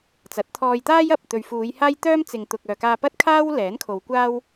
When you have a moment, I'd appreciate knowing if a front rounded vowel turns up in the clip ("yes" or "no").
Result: yes